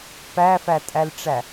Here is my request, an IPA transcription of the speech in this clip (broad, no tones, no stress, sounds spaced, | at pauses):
p æ f æ tʼ æ l ʈ͡ʂ æ